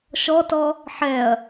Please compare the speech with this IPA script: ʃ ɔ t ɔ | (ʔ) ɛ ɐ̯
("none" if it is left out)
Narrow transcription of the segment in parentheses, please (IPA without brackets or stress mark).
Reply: ħ